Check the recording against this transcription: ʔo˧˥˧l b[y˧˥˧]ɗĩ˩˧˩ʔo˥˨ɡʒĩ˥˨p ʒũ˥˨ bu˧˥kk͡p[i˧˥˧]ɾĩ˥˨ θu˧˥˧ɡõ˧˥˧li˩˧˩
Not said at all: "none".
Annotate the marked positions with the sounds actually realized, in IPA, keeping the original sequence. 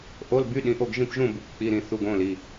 y˧˥˧, i˧˥˧

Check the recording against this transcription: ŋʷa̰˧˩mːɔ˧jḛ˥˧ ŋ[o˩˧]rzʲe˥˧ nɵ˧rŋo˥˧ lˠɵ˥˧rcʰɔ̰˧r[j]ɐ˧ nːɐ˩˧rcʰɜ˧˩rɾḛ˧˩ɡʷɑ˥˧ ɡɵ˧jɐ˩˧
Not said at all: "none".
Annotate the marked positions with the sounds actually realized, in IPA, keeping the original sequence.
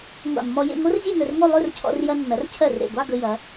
o˥, j

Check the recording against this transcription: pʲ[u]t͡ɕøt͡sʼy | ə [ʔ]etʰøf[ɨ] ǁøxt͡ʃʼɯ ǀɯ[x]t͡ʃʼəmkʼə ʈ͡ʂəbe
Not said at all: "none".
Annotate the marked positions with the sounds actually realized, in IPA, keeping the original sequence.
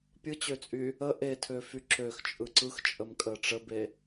ɯ, ʔ, y, x

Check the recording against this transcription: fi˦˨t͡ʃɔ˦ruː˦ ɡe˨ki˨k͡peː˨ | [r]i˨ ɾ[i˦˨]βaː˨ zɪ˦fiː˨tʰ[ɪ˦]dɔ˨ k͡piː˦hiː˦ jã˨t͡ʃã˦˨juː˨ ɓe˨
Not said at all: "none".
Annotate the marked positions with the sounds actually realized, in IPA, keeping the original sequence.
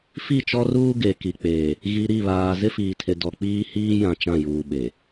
ɣ, i˦˨, ɪ˨

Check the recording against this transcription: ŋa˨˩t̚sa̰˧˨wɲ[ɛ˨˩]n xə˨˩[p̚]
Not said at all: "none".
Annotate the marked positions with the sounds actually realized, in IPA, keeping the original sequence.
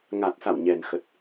ɛ˨˩, t̚

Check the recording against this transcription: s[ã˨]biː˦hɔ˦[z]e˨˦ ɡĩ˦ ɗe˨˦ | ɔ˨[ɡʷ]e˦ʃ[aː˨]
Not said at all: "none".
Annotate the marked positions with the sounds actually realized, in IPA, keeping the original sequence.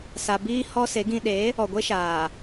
a˨, s, ɡʷ, aː˨

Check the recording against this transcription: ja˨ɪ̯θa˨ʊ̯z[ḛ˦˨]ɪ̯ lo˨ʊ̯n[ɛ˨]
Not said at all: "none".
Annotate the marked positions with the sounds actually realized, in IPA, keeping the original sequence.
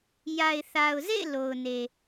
ḛ˦˨, e˨

